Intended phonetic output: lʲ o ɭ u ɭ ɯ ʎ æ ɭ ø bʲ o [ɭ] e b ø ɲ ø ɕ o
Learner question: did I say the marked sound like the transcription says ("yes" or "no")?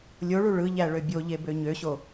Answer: no